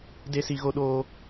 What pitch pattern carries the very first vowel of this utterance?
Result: high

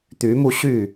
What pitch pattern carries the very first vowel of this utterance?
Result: rising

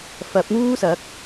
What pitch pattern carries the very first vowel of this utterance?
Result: rising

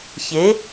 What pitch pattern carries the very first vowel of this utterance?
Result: rising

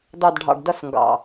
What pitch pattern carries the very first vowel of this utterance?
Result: low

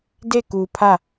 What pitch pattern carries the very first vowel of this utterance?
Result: falling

